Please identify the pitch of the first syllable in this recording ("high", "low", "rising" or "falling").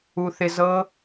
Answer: high